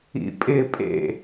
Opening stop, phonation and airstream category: ejective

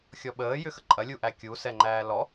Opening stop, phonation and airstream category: implosive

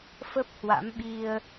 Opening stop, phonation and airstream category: plain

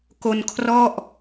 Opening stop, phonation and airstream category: plain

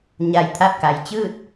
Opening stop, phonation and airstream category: aspirated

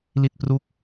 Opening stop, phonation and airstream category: plain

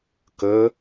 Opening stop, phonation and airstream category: plain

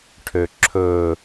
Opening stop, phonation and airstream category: aspirated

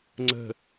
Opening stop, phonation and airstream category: click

